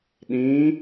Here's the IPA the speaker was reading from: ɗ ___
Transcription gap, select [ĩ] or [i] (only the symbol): ĩ